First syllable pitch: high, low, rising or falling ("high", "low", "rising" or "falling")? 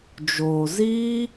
low